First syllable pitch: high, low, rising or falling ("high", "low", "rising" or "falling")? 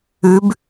rising